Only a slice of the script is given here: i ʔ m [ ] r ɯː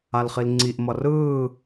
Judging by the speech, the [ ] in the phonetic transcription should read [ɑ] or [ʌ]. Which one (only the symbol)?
ʌ